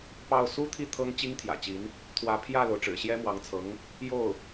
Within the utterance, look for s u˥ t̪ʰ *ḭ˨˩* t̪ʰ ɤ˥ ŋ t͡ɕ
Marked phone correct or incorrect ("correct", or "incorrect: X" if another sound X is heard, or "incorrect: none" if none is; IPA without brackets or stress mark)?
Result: incorrect: i˥˩